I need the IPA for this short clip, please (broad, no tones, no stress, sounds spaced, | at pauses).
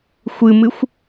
xʷ ɨ m ɨ xʷ